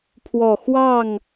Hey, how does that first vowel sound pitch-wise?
low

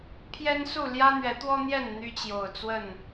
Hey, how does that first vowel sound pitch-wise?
high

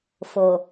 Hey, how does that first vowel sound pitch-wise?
low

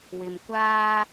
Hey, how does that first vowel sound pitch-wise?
low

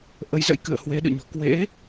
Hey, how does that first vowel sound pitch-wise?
rising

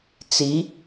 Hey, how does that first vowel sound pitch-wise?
rising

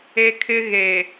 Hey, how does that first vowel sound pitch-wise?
high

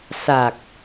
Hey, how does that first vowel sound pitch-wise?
low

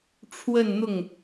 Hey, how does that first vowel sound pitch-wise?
falling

